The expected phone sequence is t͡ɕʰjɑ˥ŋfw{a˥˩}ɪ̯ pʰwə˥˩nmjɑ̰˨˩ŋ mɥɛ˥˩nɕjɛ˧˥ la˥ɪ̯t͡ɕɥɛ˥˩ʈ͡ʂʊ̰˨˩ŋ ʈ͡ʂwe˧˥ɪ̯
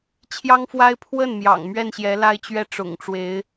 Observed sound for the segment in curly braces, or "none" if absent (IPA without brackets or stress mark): a˥